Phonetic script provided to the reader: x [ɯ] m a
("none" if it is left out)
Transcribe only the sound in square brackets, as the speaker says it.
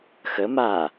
ə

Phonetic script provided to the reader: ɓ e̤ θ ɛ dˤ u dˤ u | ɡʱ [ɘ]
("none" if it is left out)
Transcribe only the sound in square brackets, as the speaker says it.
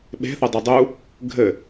ɘ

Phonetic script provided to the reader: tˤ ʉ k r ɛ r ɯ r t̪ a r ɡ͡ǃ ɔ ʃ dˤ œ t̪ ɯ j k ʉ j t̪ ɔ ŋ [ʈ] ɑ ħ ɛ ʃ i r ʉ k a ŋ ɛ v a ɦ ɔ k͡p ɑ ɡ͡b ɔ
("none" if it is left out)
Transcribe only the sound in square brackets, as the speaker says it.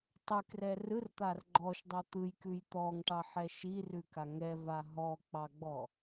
ʈ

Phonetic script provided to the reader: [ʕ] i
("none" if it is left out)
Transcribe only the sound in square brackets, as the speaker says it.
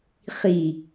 χ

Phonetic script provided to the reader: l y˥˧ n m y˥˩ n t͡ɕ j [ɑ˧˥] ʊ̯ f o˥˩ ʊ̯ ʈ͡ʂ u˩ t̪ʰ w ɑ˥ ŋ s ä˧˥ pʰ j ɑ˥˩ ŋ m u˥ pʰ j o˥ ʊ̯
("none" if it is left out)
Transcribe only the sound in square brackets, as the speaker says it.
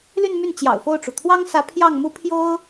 ɑ̰˨˩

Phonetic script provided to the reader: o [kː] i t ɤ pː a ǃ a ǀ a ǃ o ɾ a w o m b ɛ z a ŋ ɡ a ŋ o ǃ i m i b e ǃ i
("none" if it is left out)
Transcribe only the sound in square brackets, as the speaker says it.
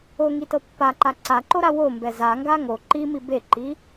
ŋ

